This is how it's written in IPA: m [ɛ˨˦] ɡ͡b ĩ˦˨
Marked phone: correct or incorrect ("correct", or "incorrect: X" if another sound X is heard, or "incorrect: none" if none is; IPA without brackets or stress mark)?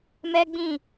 incorrect: ɛ˦